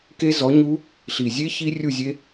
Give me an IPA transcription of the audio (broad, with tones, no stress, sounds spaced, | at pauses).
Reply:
k e˦˥ z ɔ˨˥ ɲ u˦˥ | ɬ i˨˩ zʲ e˦˥ ç i˦˥ rʲ u˥˨ zʲ e˦˥